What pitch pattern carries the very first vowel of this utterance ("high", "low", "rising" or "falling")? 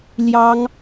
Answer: high